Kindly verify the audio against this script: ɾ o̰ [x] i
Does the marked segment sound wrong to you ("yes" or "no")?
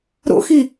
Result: no